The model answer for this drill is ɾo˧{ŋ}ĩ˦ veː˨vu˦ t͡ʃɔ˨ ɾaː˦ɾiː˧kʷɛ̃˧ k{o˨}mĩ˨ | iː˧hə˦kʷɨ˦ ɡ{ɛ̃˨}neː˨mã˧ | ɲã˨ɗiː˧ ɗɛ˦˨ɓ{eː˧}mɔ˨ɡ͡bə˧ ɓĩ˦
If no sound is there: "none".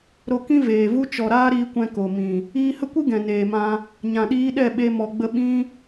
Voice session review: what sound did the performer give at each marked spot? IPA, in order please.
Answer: k, o˨, ɛ̃˨, e˧

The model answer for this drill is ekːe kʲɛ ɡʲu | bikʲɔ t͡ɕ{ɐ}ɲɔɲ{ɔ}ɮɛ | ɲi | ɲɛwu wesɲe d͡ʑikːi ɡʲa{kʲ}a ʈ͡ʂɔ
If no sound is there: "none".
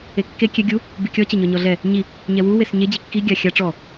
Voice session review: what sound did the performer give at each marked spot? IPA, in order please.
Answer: ɐ, ɔ, xʲ

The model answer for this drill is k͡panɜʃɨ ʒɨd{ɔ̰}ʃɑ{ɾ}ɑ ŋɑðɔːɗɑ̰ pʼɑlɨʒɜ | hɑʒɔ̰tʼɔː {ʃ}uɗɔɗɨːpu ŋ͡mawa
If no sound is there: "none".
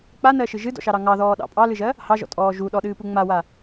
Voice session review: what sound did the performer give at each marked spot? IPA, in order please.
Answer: ɔ̰, ɾ, ʒ

